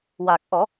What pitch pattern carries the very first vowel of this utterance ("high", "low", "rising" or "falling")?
low